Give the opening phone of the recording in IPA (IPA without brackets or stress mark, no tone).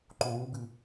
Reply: ǃ